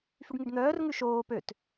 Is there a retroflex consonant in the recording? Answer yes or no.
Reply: yes